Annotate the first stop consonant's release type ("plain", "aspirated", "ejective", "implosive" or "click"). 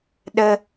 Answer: implosive